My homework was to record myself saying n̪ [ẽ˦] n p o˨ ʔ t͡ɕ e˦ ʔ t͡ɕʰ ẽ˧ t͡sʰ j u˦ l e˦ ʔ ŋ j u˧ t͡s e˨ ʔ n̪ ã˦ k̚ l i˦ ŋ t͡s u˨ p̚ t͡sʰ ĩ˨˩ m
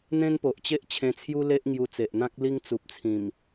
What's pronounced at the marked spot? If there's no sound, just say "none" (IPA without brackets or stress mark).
ẽ˦